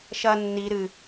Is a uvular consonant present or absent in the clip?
absent